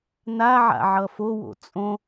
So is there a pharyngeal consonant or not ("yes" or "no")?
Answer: yes